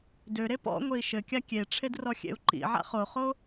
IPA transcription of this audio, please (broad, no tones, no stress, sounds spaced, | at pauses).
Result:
d ø ɾ e p ɔ̰ ŋʷ e i̯ ʃ ɘ kʲ a kʲ e ʈ͡ʂʰ e d r ɔ xʲ ḛ u̯ ǃ ḭ ʕ a̰ χ o χ o